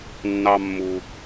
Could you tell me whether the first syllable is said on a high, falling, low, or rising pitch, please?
low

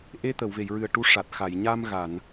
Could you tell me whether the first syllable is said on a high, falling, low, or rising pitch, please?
rising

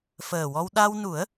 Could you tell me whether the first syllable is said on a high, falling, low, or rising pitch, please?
low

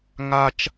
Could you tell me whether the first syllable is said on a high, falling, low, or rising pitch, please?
high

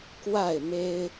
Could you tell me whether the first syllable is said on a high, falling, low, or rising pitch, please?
falling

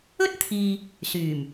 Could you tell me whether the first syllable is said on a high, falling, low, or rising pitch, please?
high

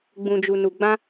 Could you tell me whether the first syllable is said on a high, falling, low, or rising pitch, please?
low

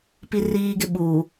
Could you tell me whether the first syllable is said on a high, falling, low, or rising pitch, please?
high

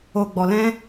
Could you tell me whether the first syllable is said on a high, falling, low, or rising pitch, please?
low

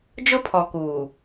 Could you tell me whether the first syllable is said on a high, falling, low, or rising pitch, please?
high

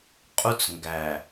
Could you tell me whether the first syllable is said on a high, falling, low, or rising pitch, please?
high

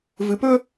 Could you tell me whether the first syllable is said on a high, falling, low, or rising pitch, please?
low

